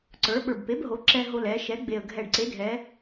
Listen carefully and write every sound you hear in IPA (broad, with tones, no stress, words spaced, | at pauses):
ǀə˞˩˧ɓə˞˨˩bpe˩˥b ɦo˩˧ ǁɛ˧ ɦo˧ lɛ˩˧ ʃɛ˩˥ɡ͡be˨˩ə̯ ɡʱɛ˨˩ɖ ǀe˩˥dʱɛ˩˧